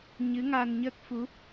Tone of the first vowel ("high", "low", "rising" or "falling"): rising